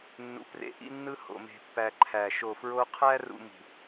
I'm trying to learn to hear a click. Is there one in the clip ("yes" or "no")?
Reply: yes